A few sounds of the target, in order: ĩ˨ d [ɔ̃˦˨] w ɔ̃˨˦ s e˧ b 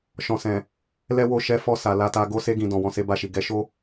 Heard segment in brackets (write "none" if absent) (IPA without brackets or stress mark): ɔ̃˨